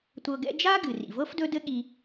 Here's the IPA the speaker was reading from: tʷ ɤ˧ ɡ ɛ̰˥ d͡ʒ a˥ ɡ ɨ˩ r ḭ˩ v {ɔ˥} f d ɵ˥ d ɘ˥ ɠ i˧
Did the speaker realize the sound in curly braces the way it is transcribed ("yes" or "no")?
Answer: no